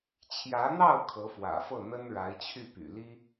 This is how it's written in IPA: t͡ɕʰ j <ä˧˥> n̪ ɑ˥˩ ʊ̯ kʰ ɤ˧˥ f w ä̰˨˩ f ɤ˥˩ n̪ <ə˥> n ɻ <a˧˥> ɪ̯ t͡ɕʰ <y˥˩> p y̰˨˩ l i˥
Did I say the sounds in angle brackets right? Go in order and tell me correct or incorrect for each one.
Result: correct, correct, correct, correct

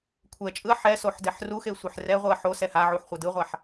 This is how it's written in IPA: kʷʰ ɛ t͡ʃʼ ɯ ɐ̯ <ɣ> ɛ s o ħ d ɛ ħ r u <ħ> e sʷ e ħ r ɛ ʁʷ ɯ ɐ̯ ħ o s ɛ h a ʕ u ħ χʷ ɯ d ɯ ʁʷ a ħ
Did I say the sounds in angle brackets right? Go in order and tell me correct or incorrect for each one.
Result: incorrect: ħ, incorrect: x

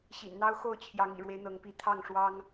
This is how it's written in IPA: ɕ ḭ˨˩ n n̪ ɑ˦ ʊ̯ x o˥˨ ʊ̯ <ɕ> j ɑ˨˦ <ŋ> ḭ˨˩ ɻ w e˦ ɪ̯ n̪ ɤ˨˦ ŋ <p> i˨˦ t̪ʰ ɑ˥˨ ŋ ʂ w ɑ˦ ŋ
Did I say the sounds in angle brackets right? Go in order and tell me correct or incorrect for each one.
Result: incorrect: t͡ɕʰ, correct, correct

